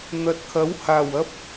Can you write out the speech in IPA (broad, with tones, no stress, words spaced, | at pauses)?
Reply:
n̪ɐ˨t̚kʰɐ˨˥whaː˨˩w ɐ˥p̚